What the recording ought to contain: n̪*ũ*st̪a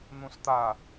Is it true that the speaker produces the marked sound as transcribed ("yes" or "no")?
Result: yes